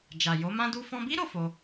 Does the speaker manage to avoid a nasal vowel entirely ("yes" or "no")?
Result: no